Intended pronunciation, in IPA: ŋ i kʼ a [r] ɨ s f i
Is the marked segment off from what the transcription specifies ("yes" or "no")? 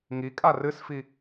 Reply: no